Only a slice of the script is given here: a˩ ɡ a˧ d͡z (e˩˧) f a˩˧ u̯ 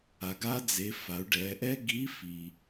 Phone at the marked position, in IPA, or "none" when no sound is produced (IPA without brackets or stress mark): e˩˧